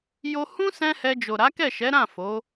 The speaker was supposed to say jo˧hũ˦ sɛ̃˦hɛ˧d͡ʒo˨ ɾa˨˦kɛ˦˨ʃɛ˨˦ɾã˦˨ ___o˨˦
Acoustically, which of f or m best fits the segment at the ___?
f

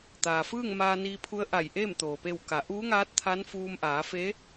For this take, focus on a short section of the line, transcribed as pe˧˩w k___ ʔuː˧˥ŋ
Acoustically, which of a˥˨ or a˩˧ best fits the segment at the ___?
a˩˧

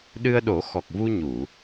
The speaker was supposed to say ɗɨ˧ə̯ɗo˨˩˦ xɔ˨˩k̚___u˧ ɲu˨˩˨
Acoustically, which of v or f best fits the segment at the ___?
v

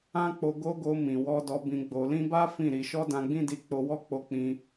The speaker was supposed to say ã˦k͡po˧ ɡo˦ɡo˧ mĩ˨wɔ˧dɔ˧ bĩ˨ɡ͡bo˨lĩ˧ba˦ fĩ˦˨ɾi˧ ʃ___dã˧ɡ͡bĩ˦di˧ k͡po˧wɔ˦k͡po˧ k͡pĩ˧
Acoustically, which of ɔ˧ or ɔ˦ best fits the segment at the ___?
ɔ˦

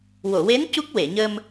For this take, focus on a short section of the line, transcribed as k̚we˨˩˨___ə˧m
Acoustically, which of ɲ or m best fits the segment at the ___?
ɲ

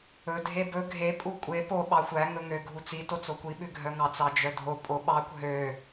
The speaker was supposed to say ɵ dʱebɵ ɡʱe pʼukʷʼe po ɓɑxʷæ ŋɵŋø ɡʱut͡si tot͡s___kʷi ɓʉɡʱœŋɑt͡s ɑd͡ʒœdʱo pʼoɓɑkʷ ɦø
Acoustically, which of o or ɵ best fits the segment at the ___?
o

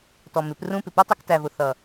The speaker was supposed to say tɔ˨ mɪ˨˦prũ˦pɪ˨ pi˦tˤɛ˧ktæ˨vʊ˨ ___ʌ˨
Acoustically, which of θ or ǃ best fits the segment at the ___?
θ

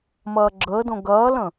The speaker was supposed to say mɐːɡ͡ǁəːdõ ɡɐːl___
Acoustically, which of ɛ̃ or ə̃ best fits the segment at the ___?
ə̃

